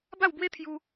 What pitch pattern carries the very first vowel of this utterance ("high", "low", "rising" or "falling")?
falling